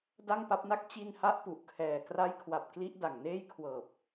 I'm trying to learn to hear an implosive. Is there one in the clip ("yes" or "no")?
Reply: no